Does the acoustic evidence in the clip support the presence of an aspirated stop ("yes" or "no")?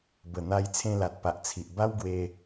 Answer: yes